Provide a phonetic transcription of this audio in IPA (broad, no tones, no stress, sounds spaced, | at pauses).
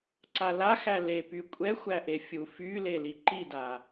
ǀ a l a x æ l e p y kʷʼ ɛ xʷ æ ʔ e fʲ u f y l e l i ǃ i d a